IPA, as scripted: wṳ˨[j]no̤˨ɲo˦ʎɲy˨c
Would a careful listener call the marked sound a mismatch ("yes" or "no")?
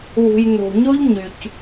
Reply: no